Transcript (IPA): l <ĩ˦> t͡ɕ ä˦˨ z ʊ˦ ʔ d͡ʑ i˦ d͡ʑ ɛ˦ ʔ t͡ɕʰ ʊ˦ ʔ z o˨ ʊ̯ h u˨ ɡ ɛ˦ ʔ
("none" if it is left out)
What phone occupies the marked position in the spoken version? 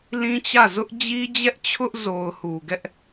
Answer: ĩ˦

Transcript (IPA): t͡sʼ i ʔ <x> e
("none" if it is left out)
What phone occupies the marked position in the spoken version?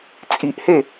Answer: h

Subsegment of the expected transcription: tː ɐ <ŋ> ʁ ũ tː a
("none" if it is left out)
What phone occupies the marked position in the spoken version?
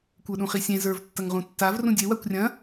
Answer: ŋ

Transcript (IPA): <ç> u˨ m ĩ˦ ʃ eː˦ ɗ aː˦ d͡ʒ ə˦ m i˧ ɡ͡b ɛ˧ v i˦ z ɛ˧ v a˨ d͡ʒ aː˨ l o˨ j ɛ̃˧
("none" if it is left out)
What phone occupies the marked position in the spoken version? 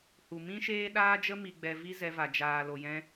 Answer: h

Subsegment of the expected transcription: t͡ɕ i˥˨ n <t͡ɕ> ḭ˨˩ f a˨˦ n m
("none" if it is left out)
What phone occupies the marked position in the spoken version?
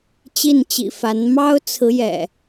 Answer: t͡ɕ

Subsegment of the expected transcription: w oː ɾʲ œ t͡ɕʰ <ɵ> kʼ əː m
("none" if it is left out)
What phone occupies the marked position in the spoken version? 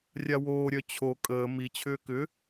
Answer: o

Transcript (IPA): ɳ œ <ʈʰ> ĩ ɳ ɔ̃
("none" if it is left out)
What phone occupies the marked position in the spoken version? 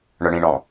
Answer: ɳ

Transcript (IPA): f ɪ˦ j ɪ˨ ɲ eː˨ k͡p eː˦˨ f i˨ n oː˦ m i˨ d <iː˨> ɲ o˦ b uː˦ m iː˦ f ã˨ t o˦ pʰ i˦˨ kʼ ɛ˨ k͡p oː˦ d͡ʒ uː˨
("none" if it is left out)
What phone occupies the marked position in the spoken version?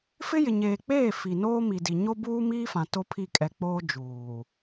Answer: i˨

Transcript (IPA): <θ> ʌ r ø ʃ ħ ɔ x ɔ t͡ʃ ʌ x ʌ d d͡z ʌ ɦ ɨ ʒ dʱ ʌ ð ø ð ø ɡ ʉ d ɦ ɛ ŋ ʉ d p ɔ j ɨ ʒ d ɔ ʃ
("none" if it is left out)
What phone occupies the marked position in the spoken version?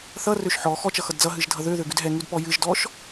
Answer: θ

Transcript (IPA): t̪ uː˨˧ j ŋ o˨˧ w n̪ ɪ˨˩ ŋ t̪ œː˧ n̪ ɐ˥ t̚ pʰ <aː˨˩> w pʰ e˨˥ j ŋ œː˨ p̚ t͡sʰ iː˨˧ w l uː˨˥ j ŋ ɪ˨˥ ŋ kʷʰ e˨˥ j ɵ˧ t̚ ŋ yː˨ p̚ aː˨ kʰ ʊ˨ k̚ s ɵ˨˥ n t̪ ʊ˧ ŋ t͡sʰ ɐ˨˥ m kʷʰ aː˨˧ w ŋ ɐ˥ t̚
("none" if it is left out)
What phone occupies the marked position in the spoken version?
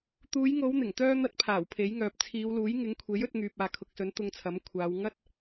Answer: aː˨˩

